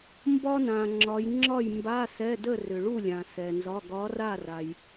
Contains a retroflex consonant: yes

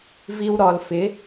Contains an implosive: no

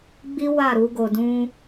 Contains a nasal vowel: yes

